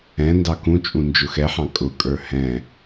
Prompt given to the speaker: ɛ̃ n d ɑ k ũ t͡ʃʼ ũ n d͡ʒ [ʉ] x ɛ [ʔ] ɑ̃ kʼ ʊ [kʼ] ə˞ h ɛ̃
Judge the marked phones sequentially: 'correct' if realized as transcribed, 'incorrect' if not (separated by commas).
incorrect, incorrect, correct